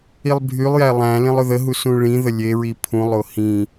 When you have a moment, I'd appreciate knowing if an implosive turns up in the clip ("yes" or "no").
no